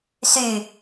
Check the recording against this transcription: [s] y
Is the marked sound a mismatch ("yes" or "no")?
no